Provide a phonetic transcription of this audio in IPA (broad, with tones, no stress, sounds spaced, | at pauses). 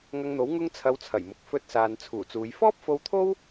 ŋ ɐ˧ ŋ n̪ o˨˥ w ŋ ʊ˥ ŋ t͡sʰ ɐ˧ w t͡sʰ ɐ˨˩ j m ʊ˨ k̚ f ɵ˧ t̚ s aː˨ n t͡sʰ uː˨˩ t͡s uː˨˧ j f ɔː˥ p̚ f o˧ w t̪ʰ o˥ w